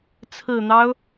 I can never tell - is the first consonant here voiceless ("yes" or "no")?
yes